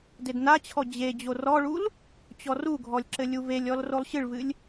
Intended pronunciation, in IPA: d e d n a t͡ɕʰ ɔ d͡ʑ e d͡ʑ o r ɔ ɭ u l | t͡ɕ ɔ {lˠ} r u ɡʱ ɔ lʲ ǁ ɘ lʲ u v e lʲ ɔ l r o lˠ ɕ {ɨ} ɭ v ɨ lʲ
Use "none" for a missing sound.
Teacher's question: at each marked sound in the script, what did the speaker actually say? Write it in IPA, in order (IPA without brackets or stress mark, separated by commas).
none, ɨ